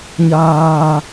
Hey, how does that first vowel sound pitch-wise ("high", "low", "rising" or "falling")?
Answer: low